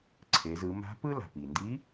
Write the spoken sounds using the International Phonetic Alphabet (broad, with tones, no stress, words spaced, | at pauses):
ǀʰe˩˧z ɯ˩˧ ma̤˧˥pɯ˥ la̤˩pi˩ndi˧˥